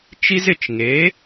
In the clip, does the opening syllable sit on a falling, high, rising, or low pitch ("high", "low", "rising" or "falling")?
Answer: high